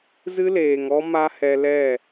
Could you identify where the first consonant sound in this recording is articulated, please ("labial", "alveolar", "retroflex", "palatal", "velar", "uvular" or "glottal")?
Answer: alveolar